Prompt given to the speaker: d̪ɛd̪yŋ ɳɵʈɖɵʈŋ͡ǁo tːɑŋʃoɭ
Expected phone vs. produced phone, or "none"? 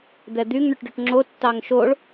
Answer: none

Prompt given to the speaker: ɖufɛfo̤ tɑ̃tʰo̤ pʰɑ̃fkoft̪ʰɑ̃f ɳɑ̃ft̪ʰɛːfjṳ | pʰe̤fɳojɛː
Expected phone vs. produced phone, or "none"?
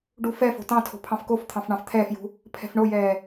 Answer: e̤ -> ɛ̤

